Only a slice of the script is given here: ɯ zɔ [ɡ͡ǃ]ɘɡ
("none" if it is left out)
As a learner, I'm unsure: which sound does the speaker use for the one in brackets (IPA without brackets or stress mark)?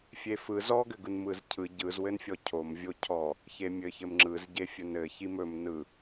ɡ